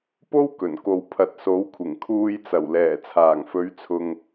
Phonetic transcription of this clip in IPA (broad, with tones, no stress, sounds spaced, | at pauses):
p o˥ w k ɵ˨˩ n k o˨ w pʰ ɐ˨ t̚ s o˨˥ w kʷʰ ɪ˨˩ ŋ kʰ uː˧ j t͡s ɐ˨˩ w l ɛː˨˩ t͡sʰ aː˨˩ ŋ f ɵ˨˧ ɥ t͡sʰ ʊ˨ ŋ